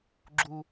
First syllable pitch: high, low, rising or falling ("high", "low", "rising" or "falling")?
low